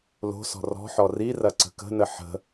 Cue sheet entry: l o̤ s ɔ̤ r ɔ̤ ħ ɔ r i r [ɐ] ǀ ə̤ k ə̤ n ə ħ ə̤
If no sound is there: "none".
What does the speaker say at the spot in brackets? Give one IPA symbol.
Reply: ɐ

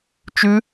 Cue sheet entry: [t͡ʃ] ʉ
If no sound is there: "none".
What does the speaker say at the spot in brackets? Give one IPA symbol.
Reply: t͡ʃ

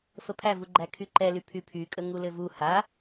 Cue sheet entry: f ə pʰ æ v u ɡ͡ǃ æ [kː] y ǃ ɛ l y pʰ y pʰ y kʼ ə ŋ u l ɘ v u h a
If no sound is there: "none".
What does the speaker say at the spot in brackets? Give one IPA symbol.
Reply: kʰ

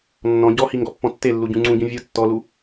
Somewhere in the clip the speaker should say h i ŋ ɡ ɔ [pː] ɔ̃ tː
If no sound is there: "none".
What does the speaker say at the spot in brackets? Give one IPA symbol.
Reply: pː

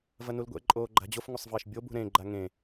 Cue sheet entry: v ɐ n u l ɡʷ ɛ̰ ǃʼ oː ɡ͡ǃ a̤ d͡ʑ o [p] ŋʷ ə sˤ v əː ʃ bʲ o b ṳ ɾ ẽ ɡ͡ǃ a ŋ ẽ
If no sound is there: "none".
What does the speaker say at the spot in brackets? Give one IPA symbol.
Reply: f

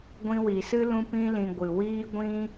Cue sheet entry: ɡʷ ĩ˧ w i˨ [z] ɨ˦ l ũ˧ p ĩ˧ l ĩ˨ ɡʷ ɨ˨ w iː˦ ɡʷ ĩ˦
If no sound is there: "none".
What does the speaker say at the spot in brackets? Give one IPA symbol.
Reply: s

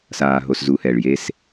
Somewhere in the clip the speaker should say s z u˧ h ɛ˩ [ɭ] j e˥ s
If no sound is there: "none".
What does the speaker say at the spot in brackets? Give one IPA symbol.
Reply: ɭ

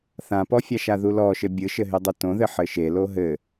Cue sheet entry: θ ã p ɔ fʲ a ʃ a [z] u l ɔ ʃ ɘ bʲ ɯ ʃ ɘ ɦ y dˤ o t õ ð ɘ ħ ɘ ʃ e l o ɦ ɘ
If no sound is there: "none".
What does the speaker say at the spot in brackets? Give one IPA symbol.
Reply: ð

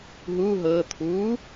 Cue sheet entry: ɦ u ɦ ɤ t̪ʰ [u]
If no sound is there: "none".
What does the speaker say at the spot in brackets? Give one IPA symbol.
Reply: u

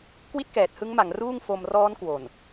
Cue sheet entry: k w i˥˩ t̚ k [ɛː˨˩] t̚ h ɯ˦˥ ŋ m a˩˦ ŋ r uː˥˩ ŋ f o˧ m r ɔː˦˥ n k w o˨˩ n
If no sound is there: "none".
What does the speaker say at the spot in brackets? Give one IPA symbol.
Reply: ɛː˨˩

